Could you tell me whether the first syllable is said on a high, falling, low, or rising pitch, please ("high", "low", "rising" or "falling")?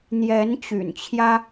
rising